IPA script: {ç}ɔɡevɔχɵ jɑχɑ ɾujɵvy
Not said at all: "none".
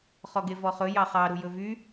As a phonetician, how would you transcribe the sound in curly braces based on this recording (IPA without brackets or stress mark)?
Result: χ